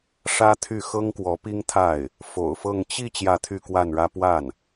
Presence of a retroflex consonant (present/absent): present